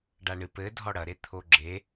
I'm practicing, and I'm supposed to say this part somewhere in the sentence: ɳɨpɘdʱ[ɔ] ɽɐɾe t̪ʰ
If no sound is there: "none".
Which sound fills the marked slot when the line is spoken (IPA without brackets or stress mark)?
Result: ɔ